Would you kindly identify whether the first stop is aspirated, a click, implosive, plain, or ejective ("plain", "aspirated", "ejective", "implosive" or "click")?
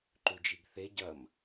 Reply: click